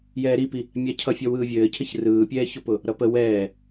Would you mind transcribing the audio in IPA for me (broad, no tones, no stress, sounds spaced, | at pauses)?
j ɛː ɾ i p i | mʲ a cʰ ʌ fʲ ɔ w ɯː vʲ ɘː cʰ ɘ ç r ɯː pʲ ɛː ç ʊ p ʊ | ɾ ʌ p ə w ɛː